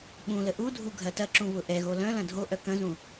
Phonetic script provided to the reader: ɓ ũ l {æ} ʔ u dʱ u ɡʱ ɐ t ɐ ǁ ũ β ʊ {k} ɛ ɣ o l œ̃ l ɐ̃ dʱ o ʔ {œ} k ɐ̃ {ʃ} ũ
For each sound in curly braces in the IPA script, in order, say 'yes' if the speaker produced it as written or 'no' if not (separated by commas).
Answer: no, no, yes, no